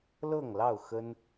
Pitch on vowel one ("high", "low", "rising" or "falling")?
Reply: falling